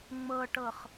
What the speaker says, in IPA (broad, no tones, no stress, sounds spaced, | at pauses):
ŋ͡m ɤ ʈ ɤ χ